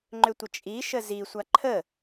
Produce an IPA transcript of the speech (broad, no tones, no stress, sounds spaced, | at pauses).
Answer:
ŋ͡ǃ ʏ tʷ ə t͡ʃʼ i ʃ ə z i sʷ a ǃʰ ə